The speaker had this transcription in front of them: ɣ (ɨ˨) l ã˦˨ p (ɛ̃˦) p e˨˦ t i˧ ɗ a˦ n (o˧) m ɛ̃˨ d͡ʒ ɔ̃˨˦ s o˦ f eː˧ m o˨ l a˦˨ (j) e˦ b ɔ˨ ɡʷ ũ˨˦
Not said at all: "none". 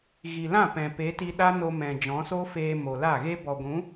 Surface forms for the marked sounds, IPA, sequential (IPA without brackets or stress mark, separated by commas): i˨, ɛ̃˨, o˧, ɣ